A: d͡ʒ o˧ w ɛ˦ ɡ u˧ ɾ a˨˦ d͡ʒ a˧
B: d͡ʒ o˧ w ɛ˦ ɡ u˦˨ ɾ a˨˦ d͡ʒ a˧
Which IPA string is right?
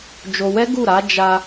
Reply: B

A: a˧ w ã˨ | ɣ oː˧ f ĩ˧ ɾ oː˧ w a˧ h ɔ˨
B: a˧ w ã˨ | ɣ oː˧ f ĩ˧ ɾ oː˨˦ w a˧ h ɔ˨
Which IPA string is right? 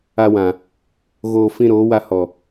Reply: B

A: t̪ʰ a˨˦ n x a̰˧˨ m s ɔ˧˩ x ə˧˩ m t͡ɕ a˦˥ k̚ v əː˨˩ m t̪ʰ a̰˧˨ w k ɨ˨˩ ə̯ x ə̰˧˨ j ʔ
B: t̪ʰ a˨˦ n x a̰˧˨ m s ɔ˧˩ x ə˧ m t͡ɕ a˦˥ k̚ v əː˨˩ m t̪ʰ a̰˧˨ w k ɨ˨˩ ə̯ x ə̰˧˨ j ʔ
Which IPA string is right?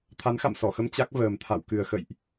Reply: B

